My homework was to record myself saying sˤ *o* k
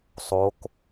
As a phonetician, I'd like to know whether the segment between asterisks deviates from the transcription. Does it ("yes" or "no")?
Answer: no